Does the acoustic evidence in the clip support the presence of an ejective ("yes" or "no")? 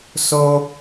no